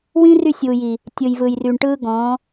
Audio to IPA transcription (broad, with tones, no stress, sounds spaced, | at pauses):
w ĩ˦ r y˦˨ sʲ uː˨ j i˨ | tʲ ɯ˨ j v ɯ˨ j r y˨ ɳ ʈ ɯː˦ ɡ ɔ̃˨˦